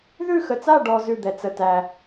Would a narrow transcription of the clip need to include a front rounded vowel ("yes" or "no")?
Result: no